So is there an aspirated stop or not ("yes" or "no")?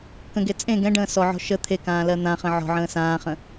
yes